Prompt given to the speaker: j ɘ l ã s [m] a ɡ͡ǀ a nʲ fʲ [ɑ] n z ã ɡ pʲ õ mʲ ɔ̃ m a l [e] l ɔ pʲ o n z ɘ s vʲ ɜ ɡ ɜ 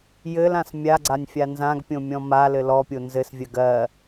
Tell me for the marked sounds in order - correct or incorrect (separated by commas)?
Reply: incorrect, incorrect, incorrect